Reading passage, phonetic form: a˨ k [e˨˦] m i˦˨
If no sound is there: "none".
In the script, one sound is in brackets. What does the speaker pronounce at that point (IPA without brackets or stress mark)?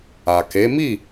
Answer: e˨˦